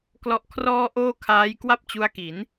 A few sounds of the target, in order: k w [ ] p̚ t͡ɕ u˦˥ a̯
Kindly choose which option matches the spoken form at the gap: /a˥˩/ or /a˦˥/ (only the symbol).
a˥˩